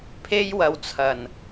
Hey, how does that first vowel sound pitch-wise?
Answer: high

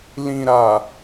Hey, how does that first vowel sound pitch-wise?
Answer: low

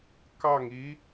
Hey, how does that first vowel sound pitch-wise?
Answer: falling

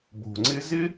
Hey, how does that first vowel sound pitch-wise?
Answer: low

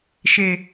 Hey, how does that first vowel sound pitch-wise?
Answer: low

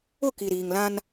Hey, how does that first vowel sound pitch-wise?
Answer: falling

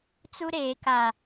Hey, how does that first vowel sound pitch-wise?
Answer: high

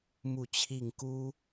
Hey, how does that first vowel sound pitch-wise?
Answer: falling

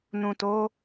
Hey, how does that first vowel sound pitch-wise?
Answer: low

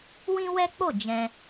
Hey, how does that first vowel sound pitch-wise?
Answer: high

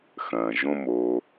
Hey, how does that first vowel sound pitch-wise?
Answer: low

